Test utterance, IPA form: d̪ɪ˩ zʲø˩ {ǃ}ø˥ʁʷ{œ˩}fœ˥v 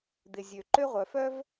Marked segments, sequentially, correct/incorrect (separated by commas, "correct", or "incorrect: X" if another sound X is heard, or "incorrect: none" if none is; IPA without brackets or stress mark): correct, correct